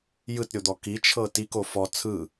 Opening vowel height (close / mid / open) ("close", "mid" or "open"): close